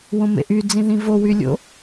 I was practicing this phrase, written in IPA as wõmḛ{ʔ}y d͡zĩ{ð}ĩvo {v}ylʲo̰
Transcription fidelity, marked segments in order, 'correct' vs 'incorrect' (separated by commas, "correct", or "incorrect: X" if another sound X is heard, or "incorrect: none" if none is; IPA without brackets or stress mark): correct, correct, incorrect: w